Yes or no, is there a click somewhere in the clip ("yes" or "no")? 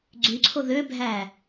yes